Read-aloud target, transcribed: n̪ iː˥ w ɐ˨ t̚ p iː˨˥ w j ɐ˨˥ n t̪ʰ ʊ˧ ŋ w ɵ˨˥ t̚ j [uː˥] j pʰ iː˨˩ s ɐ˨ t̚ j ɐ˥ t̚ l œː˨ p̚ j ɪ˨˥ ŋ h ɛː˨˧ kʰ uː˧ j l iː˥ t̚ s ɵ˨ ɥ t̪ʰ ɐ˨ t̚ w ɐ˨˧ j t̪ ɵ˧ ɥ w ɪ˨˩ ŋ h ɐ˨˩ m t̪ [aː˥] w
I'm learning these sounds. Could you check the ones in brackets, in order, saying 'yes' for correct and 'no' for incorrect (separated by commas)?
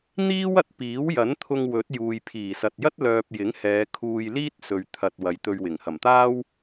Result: no, yes